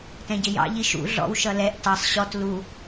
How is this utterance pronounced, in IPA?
t ɛ̃ ɟ ɪ j ɑ̰ ʎ i ʃ ṵ ɮ ɔ̰ w ʃ ʌ l ɛ ʔ t ɑ sˤ ɕ ɔ t l u

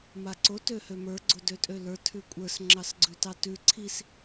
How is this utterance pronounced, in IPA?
m a ǀ o t ø h ø m ə˞ ɡ͡ǀ o d ø tʼ ø l ə˞ tʰ ʉ kʷʼ ə˞ s ŋ͡ǁ ɑ s ɡ͡ǀ ʉ t ɑ t ʉ ǀʰ i s

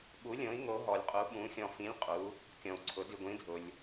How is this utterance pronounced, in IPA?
ɓ u˧˥ lʲ õ˧˥ i̯ ŋ o˧˥ ɦ ɔ˧ lʲ qʼ u˧˥ ɓ ũ˧˥ xʲ ɔ̃˧ f ĩ˧˥ lʲ qʼ u˧˥ | kʲ ɔ̃˧ u̯ ǀʰ ʊ˧˥ d i˧ ɡʷ ĩ˧˥ dʱ ʊ˧ lʲ

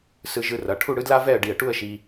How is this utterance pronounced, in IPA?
s ɯ˧ ʒ ɯ˧ r ʌ˩˧ ʈʰ u˥˧ ɽ ɯ˥ d l a˥ v ɛ˥˧ ə̯ ɖ i˧˩ ə̯ ʈ u˥˧ ə̯ ʃ i˧

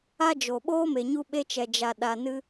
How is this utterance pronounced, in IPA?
a˦ d͡ʒ o˨ ɓ oː˦ m e˨ ɲ u˧ ɓ e˧ t͡ʃ ɛ˨ d͡ʒ a˨ ɗ a˨ n ɨ˧

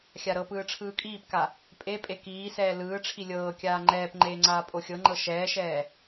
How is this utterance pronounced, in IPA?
xʲ a ɾ ɤ p ɯː ʈ͡ʂʰ ɯː kʼ iː p k a | pʼ e pʼ e k iː s ɛː l ɯː ʈ͡ʂʰ i lʲ ɤː kʲ aː ŋ͡ǃ ɛː p ŋ͡ǃ eː ŋ͡ǀ aː pʼ o xʲ ɤ ŋ͡ǃ ɤ ʃ ɛː ʃ ɛː

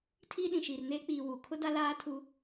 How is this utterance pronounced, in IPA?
tʰ iː˦ ɗ ĩ˨ ʃ iː˨ r n eː˦ k͡p iː˨ w u˨ kʰ ʊ˦ d a˦ l aː˦ tʰ u˦

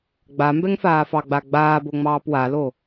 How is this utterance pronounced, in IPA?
ɡ͡b a m b ɛ ŋ f aː f ɑ ɡ͡b a ɡ͡b aː b o ŋ͡m ɑː p w a l o

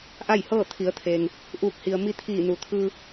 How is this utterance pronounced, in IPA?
ʔ a˥˨ j h ɤː˥˨ t̪ʰ i˩˧ ə̯ t̪ʰ eː˩ ŋ | ʔ uː˧˩ k̚ h i˩ ə̯ m i˧ t̪ʰ iː˧˩ n u˩ t̪ʰ ɯː˧

